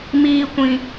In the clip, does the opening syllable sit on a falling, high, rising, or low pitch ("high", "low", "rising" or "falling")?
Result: low